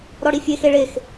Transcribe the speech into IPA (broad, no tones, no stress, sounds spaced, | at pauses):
ɾ ɔ ɽ i fʲ e x e ɭ e x